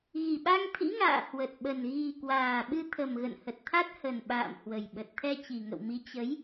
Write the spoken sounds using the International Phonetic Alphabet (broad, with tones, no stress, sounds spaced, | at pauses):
ɣ i˨˩ ɓ a˧ ŋ t̪ʰ ḭ˧˥ ŋ a̰ː˧˨ h w ə˨˩ t̚ ɓ ə˨˩ n ɣ i˨˩ k w aː˨˩ ɓ ɨ˧ t̪ʰ ə˨˩ m ɣ ə̰˧˨ n h ə˨˩ t̚ t̪ʰ a˦˥ t̚ h ə˨˩ n ɓ a̰ː˧˨ m h w ə˨˩ j ɓ ə˨˩ t̚ t̪ʰ ɛ˧ t͡ɕ i˨˩ ŋ ə̰˧˨ w m i˨˦ t͡ɕ ə˨˦ j